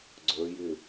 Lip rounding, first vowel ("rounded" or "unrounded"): unrounded